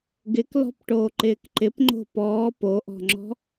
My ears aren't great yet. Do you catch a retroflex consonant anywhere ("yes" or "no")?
yes